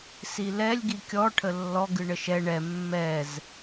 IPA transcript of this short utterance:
silɛlʲ ɡikʲɔ ʈʰəlːɔ ɡɨɳəʃɛ ɳɛ mːɛz

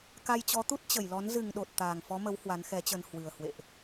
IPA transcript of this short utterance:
ka˧jt͡ɕɔ˨˦t̪u˦˥t̚ t͡ɕə˧˩jlɔ˨˦n zɨ˨˩ŋɗo˨˩t̚ t̪aː˨˩ŋfɔ˨˦mə˨˦w hwa˨˦nxɛ˨˦t͡ɕə˧n hwɨ˨˩ə̯ hwḛ˧˨ʔ

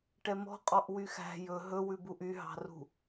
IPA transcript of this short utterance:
ʈɛmɔ̤qʼɔʔ wyxæ̤ jɵ ɦɵwʉ buʔyɦɑ̤rṳ

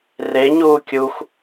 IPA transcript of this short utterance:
reɲuː kʲux

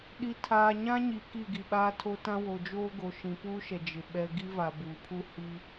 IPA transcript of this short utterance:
ɗi˨tʰaː˨ɲã˦ɲi˨ ki˦˨ɡi˨ɓaː˦tʰo˦ tã˦ wo˨d͡ʒoː˦ɡo˨˦ ʃĩ˨puː˦ʃɛ˨ d͡ʒɪ˨ ɓɛ˦ ɡi˦va˨buː˨pʰu˦ hi˦

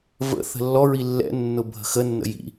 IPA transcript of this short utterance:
və̰θə̤ lːɔɹi lːɛ̰nːʊ bʱə̤xənːə̰ jḭ

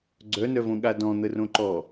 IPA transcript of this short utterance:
ɡ͡ǀœnœvõɠa dɔ̃n̪ərõ ǃɔ

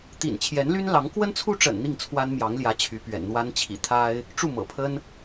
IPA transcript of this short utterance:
t̪ḭ˨˩nt͡ɕʰjɛ˧˥nly˥n lɑ˧˥ŋ kwə˥nt͡sʰu˥ʈ͡ʂə̰˨˩n n̪i˥˩ŋt͡sʰwa˥nmjɑ˧˥ŋljä˧˥ t͡ɕʰy˧˥pɥɛ̰˨˩nn̪wa˥n t͡ɕʰḭ˨˩t̪ʰa˥ɪ̯ | ʈ͡ʂu˥˩mɤ̰˨˩pʰə˥n

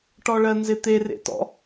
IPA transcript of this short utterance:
ʈɔɭɜnzɪt̪e rḛtɔ̰

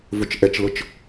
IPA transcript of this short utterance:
vʊt͡ʃʔɛt͡ʃlʊt͡ʃ

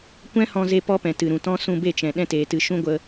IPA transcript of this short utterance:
kʷɛ̃˦hɔ̃˧ze˧ pɔ˦pɛ̃˨tɨ˨ ɾũ˨tɔ̃˦ sũ˧be˦˨t͡ʃɛ̃˨ ɗɛ̃˧teː˨tɨ˨ ʃũ˦ɡʷə˧

